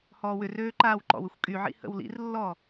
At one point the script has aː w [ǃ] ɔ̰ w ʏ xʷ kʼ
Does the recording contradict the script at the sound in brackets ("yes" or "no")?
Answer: no